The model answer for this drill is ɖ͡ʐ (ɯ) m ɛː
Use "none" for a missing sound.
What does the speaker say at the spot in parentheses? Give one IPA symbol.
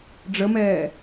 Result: ə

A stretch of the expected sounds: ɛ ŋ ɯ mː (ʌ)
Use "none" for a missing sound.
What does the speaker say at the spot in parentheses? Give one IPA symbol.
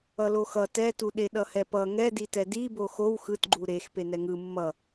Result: ʌ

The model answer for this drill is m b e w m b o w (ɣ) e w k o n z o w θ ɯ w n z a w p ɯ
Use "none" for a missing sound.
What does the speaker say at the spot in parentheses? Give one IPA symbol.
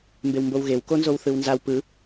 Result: ɣ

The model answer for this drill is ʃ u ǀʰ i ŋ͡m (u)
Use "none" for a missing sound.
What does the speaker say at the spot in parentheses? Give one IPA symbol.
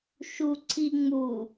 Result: u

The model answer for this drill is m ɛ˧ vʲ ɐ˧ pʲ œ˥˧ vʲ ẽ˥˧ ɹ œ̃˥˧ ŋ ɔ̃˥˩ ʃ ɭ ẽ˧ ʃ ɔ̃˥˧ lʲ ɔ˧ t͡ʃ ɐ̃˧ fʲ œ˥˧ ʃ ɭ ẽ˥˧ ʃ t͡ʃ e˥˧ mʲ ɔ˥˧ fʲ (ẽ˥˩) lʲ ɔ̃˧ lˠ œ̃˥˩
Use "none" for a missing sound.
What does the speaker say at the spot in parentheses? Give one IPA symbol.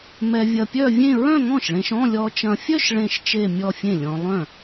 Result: ẽ˥˩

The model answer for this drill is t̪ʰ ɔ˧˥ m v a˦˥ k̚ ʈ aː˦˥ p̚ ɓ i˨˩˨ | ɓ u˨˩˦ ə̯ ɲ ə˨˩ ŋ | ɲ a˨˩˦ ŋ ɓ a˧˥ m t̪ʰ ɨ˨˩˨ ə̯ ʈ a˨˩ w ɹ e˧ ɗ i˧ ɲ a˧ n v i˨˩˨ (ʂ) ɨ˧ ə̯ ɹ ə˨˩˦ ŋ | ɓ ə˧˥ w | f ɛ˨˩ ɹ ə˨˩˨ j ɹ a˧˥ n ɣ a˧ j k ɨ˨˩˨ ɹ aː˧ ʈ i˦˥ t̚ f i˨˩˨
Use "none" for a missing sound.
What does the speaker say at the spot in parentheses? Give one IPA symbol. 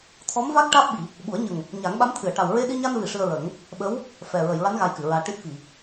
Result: ʂ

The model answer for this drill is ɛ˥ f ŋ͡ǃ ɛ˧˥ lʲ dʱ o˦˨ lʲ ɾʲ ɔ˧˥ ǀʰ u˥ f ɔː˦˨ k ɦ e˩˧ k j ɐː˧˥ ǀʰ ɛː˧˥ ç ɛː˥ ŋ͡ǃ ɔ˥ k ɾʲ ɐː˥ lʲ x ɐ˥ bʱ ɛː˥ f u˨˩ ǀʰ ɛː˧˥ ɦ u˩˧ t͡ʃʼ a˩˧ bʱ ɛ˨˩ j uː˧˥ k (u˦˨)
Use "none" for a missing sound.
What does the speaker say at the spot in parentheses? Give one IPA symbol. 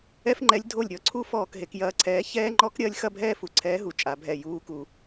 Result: u˨˩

